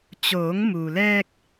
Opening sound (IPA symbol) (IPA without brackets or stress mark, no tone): t͡ɕ